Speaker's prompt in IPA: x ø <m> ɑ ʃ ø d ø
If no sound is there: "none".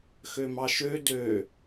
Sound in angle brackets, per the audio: m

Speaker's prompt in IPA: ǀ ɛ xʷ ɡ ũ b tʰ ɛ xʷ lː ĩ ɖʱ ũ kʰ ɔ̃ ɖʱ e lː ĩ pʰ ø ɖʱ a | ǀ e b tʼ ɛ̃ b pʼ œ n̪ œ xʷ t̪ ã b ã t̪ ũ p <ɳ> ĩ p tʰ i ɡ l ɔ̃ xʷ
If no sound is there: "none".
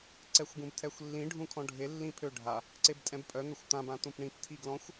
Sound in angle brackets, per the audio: ɳ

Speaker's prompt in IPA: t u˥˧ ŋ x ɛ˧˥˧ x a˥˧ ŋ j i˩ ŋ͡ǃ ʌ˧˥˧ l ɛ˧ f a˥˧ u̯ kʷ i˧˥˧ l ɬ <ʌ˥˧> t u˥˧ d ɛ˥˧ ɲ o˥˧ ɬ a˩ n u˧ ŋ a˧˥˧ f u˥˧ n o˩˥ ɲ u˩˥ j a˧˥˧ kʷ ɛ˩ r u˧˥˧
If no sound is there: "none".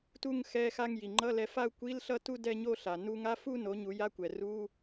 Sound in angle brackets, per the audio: ʌ˥˧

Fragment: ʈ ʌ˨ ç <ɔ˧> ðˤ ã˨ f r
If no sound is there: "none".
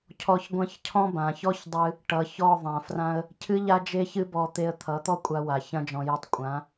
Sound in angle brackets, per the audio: ɔ˦˨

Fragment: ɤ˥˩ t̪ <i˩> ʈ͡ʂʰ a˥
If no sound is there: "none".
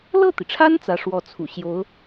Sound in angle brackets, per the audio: i˩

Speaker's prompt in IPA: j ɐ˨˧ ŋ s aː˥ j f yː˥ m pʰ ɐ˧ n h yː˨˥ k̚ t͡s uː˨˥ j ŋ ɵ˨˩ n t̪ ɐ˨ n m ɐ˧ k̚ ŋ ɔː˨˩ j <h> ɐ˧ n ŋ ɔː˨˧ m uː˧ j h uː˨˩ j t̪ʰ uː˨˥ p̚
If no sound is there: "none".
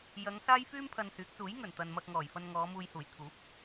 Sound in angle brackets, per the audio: f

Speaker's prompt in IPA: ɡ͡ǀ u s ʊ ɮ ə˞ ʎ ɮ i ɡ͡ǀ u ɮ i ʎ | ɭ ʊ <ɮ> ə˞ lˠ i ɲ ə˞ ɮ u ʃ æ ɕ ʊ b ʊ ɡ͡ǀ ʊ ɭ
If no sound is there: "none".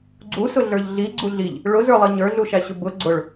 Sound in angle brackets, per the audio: z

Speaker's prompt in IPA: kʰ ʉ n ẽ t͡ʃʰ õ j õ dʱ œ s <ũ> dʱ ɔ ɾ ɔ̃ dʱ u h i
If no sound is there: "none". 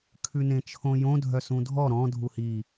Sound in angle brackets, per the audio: ũ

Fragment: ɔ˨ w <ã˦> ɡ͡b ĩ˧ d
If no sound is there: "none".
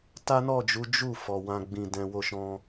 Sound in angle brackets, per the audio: ã˧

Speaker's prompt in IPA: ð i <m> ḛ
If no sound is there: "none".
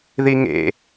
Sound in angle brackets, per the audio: ŋ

